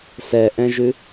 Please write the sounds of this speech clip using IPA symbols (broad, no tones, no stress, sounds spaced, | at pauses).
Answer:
s ɛ ʔ ɛ̃ ʒ ʉ